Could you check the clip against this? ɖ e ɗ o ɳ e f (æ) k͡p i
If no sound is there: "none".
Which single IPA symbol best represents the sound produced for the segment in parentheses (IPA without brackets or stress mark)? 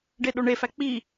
æ